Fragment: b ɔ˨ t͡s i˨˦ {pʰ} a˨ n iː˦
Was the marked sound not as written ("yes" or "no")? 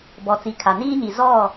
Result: yes